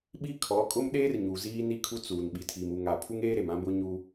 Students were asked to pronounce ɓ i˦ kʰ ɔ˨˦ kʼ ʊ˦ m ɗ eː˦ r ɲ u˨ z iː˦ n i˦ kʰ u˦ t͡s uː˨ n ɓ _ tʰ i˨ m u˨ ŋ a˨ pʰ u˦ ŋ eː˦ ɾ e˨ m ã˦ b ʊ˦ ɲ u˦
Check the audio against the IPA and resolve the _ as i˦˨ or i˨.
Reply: i˨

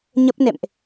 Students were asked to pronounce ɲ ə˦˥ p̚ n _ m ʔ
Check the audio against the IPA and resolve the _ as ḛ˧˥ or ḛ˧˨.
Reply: ḛ˧˨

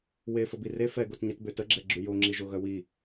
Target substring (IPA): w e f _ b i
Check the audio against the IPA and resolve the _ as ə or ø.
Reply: ə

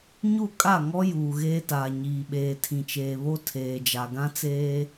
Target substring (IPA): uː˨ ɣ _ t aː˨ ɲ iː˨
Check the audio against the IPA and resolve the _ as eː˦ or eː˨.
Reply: eː˦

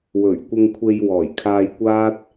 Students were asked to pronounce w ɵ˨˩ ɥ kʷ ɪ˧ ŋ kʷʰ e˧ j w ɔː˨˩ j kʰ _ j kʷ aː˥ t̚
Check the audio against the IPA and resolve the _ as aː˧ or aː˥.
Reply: aː˧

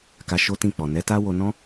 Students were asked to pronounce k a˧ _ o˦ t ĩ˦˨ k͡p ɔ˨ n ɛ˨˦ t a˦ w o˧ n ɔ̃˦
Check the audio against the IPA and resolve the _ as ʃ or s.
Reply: ʃ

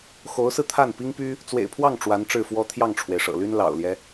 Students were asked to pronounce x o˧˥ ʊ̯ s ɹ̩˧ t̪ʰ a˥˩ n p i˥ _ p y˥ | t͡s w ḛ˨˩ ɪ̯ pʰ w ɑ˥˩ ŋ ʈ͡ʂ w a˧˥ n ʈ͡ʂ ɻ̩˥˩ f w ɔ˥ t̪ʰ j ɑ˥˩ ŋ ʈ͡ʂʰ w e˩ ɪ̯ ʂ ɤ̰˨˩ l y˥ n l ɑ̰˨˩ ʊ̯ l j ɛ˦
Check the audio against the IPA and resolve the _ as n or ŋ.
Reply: ŋ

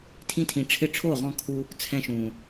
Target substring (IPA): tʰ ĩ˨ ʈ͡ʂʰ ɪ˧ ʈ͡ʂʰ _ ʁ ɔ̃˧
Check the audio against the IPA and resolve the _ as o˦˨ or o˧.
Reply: o˦˨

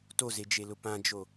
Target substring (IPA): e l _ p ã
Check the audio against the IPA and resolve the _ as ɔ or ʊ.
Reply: ʊ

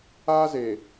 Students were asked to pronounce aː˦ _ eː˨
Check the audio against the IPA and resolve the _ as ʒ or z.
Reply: z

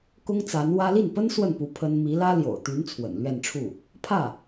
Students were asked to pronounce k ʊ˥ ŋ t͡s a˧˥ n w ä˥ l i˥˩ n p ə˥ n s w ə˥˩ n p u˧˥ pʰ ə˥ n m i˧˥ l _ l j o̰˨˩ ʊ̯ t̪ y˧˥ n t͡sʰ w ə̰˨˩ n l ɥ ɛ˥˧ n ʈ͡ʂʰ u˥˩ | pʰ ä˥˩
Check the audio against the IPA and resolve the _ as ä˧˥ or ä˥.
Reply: ä˥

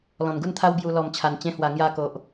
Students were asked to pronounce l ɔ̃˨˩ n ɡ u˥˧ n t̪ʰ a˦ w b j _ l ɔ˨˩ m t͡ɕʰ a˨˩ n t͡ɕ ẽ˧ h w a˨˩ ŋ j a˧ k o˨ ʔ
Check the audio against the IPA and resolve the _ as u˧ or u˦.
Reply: u˧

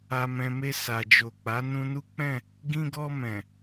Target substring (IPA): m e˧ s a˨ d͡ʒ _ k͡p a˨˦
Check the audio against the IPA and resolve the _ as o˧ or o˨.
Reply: o˨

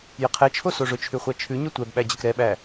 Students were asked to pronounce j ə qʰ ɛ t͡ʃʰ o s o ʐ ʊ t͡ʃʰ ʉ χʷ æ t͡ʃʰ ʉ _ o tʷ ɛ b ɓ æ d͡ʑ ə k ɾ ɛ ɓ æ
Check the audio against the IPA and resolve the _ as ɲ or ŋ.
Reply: ɲ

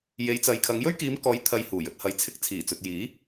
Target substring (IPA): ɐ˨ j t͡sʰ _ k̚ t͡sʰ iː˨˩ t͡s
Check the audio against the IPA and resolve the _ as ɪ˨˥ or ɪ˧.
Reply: ɪ˧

